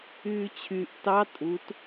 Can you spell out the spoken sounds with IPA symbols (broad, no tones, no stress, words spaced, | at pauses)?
yːt͡ɕʰyʔ tɑ tʼut